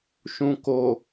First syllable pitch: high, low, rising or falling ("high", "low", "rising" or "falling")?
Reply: low